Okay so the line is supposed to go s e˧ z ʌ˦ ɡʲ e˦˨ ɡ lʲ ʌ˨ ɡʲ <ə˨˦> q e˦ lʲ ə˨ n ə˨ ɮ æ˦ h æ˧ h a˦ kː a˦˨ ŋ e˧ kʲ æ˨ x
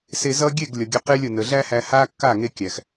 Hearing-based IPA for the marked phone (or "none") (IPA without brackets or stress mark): ə˨˦